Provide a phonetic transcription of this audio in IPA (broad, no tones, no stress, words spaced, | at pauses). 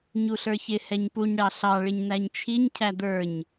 ɲuɬə˞çɪ hɛɲpuɲ ɽɑɬɑ ɭɪɲnæɲt͡ʃʰiɲ cʰæd̪ə˞ɲ